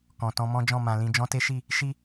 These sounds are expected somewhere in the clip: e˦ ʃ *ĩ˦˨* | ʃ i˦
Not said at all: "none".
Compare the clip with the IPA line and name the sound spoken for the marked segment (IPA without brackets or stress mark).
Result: i˦˨